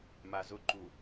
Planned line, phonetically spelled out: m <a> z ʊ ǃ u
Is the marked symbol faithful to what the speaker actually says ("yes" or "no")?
yes